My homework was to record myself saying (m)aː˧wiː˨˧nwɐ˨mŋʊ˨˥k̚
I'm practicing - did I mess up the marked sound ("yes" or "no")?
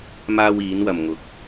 no